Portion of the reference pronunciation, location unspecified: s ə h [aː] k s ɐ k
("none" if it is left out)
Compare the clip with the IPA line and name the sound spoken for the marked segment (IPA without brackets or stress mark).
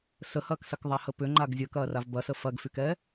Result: ɐː